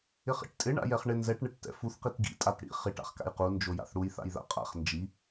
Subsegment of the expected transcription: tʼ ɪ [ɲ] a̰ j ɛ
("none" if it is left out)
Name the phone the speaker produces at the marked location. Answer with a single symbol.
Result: ɳ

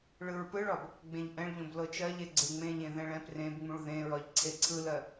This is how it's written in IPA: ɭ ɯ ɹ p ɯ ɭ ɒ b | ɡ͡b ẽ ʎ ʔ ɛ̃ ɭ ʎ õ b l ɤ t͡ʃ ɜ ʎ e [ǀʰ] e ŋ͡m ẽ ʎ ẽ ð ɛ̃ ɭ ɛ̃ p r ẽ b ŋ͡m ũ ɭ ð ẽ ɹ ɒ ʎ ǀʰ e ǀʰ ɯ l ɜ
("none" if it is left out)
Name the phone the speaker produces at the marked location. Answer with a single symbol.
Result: ɡ͡ǀ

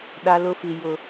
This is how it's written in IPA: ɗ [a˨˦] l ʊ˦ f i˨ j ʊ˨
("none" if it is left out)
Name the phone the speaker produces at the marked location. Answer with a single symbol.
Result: a˦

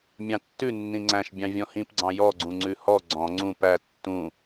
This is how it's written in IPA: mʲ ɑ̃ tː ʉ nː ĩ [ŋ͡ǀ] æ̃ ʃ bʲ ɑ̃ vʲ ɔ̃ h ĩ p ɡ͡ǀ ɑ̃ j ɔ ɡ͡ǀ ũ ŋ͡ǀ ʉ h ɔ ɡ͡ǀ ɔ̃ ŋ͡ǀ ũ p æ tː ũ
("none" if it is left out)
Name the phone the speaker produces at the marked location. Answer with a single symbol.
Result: ŋ͡ǀ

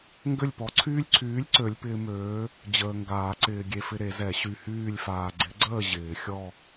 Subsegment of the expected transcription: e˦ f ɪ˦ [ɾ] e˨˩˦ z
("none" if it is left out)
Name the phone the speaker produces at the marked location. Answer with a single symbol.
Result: ɾ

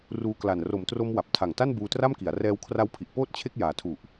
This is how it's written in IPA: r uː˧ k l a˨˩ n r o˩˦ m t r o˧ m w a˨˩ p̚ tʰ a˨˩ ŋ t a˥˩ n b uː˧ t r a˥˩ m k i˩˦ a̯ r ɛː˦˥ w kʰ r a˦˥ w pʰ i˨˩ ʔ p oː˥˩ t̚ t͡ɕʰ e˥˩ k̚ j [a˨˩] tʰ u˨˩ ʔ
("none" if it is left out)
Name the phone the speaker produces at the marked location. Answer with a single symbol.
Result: aː˨˩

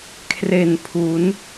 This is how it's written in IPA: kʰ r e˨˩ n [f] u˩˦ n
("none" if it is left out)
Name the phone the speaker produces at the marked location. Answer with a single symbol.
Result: pʰ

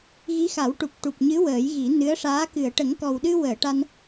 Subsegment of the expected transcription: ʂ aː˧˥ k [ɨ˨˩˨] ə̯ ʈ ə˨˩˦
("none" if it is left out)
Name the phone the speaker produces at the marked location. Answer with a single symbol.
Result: ɨ˨˩˨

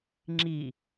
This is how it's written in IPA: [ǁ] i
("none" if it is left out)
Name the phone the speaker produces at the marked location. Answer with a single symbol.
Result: ŋ͡ǁ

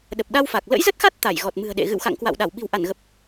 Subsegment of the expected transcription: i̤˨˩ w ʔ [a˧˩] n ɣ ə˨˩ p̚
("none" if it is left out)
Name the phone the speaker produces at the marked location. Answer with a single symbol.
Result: a˧˩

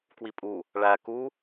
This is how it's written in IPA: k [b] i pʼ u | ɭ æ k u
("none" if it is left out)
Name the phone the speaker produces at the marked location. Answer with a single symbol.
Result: w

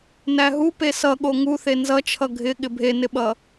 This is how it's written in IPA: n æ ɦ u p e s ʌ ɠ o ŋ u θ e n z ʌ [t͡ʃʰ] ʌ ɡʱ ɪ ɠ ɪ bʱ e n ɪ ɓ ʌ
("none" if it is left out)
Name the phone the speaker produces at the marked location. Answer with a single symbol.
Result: t͡ʃʰ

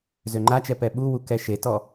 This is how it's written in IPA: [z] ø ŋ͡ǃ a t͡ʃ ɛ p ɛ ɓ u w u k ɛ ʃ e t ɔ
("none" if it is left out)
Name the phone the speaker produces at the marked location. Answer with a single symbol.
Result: z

